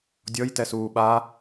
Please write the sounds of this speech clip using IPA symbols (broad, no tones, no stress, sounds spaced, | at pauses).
dʲ ɔ j t ɛ s uː ɓ a